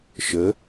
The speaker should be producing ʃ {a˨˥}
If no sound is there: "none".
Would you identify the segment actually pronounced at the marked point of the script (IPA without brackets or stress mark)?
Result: ə˨˥